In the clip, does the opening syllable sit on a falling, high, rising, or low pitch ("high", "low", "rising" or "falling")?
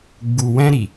low